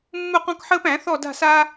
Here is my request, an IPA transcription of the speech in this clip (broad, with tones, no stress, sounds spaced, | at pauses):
mː u˦˨ q ɔ̃˦ k ħ əː˦ p æ̃˨˩˦ θ ɔ˦˨ d a̤˦˨ s aː˦